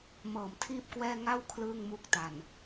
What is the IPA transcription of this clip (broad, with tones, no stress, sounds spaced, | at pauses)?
m ɤː˨˩ m tʰ iː˥˩ p̚ k w ɛː˥˩ ŋ a˥˩ w kʰ l ɯː˥˩ ŋ m u˦˥ k̚ t a˨˩ n